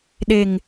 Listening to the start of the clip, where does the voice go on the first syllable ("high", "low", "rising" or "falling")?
low